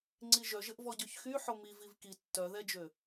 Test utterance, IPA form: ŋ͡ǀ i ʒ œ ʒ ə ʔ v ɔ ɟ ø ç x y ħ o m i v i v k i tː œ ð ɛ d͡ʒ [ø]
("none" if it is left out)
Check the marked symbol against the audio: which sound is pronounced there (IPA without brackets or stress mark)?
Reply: ø